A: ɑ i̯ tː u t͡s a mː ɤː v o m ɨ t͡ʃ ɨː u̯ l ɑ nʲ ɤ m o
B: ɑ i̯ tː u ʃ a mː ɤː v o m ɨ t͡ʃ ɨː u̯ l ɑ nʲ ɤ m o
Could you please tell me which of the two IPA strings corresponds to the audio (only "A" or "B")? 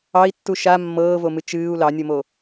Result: B